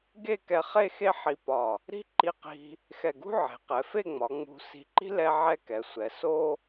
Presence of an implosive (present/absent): absent